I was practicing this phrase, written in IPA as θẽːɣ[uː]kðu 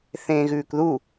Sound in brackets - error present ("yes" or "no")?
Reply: yes